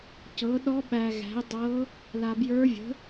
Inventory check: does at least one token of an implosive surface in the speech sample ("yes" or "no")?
yes